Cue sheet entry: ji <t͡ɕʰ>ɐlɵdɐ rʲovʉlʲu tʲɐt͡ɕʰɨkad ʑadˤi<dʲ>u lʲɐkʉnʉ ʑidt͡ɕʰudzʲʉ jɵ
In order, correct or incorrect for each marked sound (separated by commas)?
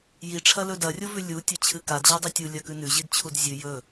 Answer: incorrect, incorrect